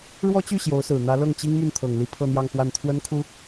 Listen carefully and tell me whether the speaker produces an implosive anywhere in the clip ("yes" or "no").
no